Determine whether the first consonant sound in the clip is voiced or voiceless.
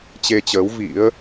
voiceless